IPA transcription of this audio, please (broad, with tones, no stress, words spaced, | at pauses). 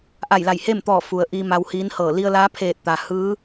ʔa˧˩jla˧˩jhe˥˨mt̪ɔː˧˩ fu˩ə̯ʔiː˧ ma˧whiː˧˥n hɤː˧˩ li˧ə̯laː˧˥pʰeː˧˩t̚ t̪a˩hɯː˧˥